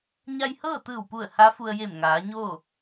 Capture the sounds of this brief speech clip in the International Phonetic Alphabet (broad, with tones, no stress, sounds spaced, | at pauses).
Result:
ɲ a˧ j h ɤː˥˨ t̪ ɯː˧˩ w p u˧˩ ə̯ h a˧˥ f u˧ ə̯ j e˧˩ m ŋ aː˩˧ ɲ oː˥˨